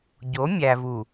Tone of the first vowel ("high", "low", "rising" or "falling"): rising